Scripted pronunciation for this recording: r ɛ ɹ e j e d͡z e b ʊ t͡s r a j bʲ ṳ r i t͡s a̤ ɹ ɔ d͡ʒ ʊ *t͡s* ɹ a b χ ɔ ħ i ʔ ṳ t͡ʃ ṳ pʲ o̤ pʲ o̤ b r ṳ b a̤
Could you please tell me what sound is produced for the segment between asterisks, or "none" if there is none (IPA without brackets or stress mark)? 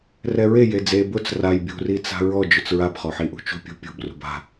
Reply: t͡s